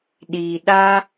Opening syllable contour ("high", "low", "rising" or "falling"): low